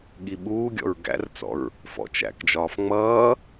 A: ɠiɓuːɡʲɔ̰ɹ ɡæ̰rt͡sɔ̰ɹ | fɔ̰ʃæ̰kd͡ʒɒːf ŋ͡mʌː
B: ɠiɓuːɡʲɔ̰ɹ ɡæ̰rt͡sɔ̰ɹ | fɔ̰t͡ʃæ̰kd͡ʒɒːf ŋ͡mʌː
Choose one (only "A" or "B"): B